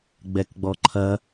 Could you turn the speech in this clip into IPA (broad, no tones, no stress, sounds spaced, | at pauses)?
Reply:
ɡ͡b ɛ k ɡ͡b ɔ ǃʰ ɐ